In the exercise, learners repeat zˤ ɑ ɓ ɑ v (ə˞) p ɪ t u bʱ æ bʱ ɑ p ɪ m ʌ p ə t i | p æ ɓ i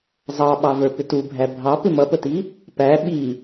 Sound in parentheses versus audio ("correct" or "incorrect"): correct